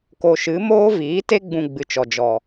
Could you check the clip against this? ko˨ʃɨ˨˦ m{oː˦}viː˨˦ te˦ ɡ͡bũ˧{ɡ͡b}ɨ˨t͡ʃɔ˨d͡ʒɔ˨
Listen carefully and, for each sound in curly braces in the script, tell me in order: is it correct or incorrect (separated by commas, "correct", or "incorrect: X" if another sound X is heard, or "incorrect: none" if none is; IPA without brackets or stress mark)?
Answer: correct, correct